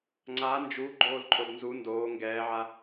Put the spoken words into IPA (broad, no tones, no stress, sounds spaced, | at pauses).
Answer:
ŋ͡ǀ a n d͡ʒ u ɡ͡ǃ oː l ǃʼ o d n z u n d oː ŋ ɡ ɛː ʕ a